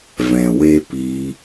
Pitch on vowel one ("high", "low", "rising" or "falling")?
low